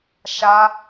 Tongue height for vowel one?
low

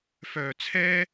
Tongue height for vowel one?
mid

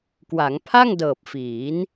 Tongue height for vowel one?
low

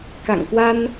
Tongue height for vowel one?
low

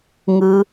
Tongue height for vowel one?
high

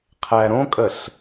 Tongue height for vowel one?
low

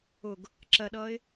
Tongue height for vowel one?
high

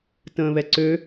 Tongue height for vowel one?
mid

